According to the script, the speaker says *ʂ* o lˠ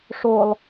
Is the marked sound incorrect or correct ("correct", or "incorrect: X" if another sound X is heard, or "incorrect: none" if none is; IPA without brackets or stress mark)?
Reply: correct